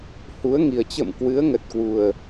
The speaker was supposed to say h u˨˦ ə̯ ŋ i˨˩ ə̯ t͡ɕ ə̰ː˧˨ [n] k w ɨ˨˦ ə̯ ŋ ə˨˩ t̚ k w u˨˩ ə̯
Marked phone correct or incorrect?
incorrect: m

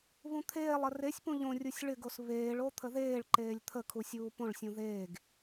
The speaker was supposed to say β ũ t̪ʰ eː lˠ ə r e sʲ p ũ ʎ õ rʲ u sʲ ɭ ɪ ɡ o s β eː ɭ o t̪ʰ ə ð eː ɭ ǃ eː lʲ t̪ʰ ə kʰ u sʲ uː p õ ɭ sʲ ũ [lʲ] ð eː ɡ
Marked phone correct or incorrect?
incorrect: none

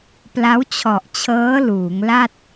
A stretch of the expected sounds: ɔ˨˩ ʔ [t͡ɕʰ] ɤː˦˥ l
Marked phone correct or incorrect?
correct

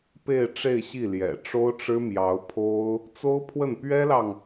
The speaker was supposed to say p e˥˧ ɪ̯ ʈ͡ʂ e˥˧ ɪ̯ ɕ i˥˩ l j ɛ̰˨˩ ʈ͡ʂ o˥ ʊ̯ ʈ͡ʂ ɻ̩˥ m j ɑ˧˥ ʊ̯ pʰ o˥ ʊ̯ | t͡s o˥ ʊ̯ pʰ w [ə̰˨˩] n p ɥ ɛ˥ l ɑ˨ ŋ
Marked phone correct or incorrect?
incorrect: ə˥˩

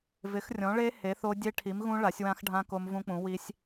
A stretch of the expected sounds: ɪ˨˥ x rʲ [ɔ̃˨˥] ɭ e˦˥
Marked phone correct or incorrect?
correct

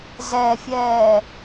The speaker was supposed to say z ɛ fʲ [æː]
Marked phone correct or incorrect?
incorrect: ɛː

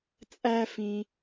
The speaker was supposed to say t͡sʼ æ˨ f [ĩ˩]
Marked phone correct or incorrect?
correct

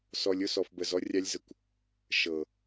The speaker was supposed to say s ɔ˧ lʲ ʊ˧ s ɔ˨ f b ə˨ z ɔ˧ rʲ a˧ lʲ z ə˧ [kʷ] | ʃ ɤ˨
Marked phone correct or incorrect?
correct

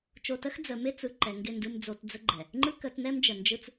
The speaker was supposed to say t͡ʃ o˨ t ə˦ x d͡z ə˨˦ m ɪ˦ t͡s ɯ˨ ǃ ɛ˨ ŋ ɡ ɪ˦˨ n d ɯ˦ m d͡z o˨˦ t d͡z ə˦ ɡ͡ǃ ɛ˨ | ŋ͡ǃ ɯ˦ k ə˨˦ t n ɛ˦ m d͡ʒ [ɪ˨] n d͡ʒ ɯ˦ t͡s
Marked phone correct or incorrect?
incorrect: ə˨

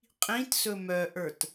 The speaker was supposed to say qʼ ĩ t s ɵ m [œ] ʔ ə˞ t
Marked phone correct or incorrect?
correct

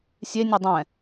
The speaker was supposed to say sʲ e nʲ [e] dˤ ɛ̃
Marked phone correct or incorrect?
correct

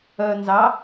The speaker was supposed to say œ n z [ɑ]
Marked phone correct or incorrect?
correct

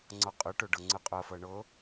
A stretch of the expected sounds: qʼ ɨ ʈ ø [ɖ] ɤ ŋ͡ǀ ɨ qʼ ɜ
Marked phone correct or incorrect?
correct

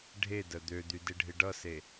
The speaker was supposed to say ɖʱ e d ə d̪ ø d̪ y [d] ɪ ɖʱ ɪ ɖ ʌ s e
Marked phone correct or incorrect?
correct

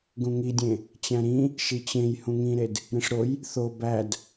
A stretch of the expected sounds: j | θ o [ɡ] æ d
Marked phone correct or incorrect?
incorrect: b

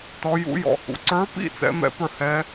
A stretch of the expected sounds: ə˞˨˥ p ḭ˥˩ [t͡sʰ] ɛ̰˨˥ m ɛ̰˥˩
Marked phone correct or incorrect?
incorrect: t͡s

